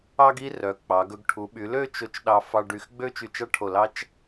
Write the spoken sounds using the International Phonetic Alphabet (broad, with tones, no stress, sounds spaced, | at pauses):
ɑ˥ ɡ i˥ r œ˩˧ k͡p ɑ˩˧ ɡ ɵ˧ ɡ ʈʰ u˩˧ ɓ y˩˧ l ø˥˧ t͡ʃ o˧˩ t͡ʃ ɗ ɑ˧ f ɑ˧ ɖ y˧ x ɡ͡b ø˥ t͡ʃ y˧˩ t͡ʃ ɑ˥ ʈʰ o˧˩ l ɑ˥ t͡ʃ